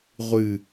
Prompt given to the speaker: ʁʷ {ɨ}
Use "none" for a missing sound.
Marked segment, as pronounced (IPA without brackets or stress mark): ɨ